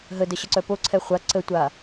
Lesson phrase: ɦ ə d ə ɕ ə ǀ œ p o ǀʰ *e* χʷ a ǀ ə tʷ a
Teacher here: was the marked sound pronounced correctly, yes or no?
no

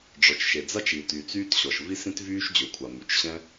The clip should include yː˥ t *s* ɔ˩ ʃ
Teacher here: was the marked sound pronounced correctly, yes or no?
no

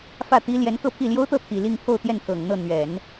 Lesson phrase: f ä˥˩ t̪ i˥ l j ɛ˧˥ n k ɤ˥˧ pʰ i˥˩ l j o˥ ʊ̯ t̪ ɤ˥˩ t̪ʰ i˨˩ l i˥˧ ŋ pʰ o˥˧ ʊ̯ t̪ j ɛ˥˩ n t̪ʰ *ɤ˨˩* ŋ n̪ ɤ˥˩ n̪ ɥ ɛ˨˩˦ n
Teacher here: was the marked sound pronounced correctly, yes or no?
yes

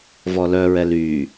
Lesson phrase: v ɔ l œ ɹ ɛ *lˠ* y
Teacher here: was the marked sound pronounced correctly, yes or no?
no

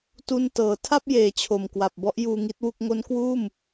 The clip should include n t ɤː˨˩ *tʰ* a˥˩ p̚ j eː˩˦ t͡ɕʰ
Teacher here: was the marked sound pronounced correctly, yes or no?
yes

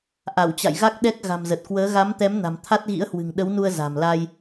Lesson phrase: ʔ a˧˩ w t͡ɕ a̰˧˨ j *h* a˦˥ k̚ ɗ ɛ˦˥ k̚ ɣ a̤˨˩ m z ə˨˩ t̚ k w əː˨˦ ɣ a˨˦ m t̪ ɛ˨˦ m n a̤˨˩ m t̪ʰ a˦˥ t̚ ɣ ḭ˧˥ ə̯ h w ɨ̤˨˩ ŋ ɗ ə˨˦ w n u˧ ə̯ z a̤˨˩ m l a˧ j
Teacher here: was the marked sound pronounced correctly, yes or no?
no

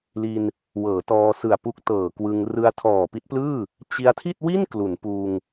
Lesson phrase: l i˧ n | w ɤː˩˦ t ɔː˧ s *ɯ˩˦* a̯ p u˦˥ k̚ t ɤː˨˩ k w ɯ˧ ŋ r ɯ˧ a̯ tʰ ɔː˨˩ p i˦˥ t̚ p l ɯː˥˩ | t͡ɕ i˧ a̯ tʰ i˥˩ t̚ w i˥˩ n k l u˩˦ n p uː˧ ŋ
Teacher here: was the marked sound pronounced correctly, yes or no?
no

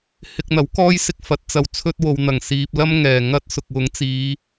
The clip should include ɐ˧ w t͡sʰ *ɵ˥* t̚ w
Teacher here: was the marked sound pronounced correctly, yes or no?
yes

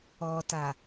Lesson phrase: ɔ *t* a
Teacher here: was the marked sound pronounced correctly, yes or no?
yes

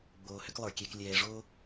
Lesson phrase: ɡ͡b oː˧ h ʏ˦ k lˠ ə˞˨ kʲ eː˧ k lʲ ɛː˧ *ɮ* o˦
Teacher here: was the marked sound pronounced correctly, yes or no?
no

